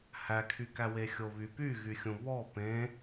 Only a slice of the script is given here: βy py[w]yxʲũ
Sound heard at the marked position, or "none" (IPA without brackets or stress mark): ɣ